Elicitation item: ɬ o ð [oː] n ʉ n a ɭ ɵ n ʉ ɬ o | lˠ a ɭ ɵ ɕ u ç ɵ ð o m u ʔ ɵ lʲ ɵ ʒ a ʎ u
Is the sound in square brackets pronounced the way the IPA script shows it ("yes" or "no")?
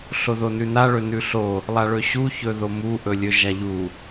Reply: no